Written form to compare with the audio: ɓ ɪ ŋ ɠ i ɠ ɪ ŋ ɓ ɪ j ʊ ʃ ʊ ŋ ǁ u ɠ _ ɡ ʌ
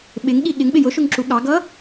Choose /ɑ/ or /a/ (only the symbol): ɑ